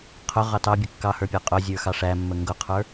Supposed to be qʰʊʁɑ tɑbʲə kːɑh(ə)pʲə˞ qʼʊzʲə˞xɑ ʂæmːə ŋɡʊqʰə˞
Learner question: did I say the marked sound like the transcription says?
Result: no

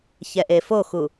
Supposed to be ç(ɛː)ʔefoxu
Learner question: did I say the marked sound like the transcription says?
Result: no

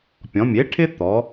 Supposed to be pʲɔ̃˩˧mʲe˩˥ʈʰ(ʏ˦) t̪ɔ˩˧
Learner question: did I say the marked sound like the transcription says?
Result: no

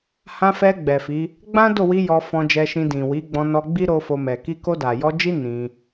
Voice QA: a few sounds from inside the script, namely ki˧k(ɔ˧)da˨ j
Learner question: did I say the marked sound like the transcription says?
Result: no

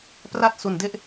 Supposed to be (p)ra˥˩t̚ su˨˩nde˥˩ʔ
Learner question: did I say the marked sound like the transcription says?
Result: yes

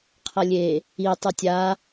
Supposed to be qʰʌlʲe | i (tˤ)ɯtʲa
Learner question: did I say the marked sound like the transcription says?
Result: yes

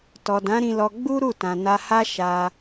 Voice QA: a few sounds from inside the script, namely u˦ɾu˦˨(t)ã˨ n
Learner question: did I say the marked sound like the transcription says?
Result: yes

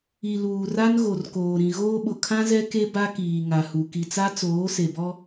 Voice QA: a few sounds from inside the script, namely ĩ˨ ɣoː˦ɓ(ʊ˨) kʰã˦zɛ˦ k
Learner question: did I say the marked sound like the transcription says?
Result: yes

